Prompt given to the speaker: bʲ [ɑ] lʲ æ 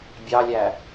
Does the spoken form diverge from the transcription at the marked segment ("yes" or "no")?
no